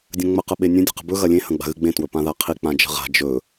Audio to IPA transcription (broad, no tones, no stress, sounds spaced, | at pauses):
dʲ ɐ̃ ŋ͡m ə q ə ɓ e nʲ ə̃ dʲ ə̤ q ə̤ b ɵ ɣ ɐ lʲ ẽ h ɐ̃ ɡ͡b a̤ ɣ ɨ ɡ͡b ẽ t w ɵ p ã ð a qʰ i k͡p ã d͡ʒ ə̤ ʁ a̤ d͡ʒ ɵ